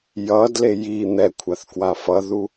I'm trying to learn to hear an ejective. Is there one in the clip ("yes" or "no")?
no